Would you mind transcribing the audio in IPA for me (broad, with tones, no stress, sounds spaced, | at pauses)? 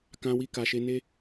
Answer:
k ã˧ w i˧ k a˨ ʃ e˧ n e˦